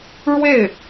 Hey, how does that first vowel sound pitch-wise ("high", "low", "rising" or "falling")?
falling